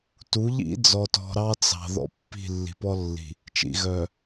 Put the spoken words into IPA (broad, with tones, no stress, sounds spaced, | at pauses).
t u˨˦ ʎ ḭ˦ d͡z ɔ˨ t ɔ̤˨ ɾ ɑ˦ t͡s ɑ̤˨ ð ɔ̰˦ pː i̤˦˨ lː i̤˨ p ɔ˦ lː i̤˨ | t͡ʃ ḭ˨ ɣ œ˨